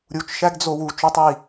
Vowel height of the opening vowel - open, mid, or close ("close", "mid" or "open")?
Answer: close